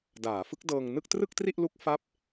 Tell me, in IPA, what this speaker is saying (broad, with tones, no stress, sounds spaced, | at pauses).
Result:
d aː˩˦ f ɯ˦˥ k̚ d ɤː˧ ŋ n ɯ˥˩ k̚ t r ɯ˥˩ k̚ t r i˥˩ ʔ l u˦˥ k̚ f a˥˩ p̚